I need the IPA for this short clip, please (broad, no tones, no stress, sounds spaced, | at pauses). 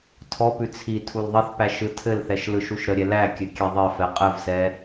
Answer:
tʰ ɔ p ʉ t͡sʰ i tʰ u l ðˤ ɘ θ p æ ʃ ɯ tʰ ɘ l θ ɛ ʃ l ɯ ʃ u ʃ ɾ ə ɾʲ ɛ l æ kʲ ɘ kʲ ɛ ðˤ ɘ f ɛ qʼ ɘ v s ɛ